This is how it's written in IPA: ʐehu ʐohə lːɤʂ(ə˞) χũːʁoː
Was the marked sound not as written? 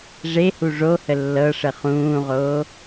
yes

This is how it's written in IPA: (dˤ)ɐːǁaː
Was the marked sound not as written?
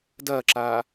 yes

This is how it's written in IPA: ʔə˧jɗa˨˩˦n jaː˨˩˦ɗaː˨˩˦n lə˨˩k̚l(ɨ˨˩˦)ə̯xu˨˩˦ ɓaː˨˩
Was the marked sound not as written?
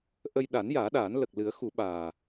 no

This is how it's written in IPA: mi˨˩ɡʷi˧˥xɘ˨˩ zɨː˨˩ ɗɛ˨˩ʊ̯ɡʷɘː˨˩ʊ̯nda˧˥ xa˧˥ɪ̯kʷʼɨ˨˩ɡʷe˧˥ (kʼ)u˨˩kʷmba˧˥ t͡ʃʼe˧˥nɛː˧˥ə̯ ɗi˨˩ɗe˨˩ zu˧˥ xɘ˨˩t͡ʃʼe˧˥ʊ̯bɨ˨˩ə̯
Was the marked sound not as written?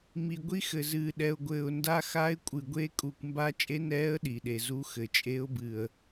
no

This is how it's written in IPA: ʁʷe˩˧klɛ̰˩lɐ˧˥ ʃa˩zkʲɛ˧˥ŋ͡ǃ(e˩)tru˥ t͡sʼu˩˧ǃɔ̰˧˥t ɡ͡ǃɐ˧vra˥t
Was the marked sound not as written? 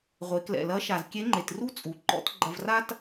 no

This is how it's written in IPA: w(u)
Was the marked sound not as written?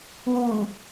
no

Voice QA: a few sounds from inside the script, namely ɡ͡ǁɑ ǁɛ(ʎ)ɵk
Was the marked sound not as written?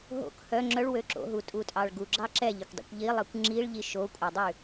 no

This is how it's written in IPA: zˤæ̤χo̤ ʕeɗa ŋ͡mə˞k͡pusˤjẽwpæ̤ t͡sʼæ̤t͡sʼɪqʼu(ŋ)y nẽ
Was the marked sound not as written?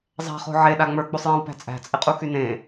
yes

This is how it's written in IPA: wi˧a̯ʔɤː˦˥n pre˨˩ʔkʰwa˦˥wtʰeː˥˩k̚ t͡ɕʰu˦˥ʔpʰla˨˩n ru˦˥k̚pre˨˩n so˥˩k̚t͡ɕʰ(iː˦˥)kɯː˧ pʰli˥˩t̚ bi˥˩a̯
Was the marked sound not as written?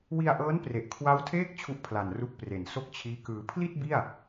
no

